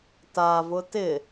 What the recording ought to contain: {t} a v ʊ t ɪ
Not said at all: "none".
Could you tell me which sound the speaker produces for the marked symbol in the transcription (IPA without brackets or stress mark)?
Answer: t